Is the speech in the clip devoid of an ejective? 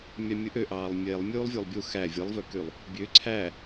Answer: yes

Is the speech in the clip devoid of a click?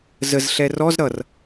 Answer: yes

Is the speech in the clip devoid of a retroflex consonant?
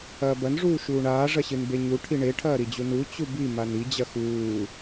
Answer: no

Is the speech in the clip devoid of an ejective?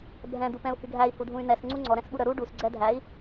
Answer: yes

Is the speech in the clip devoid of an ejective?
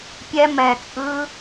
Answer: no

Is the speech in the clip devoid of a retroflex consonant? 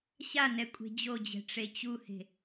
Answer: no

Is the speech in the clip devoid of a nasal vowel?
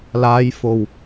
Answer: yes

